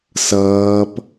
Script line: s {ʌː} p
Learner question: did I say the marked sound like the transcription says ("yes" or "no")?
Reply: yes